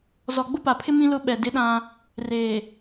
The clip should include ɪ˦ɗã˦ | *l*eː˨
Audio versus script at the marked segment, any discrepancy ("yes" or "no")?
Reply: yes